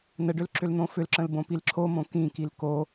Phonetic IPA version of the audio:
nəɖʏl ǁʏln̪õfʏlǁə̃l bõpilǁʰomõ kĩkil ko

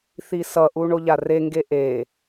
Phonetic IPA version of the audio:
θisʌʔu ɳoʎareŋɡe ʔe

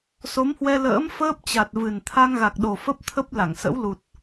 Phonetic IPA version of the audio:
so˨˦mhwɛ˧ lə̰ː˧˥m fəː˦˥p̚t͡ɕa˨˩t̚vɨ˨˩n t̪ʰa˧ŋɣa˨˩k̚ɗo˨˩ fə˦˥p̚t̪ʰə˦˥p̚la˧˩ŋsə̰˧˥w lu˨˩t̚

